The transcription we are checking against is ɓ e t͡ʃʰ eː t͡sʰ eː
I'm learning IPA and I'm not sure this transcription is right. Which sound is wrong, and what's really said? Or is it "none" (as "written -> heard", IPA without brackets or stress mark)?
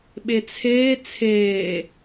t͡ʃʰ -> t͡sʰ